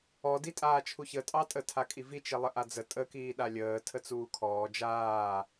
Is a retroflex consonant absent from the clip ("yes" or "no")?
yes